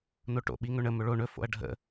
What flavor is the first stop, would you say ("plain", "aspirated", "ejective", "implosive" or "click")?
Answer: plain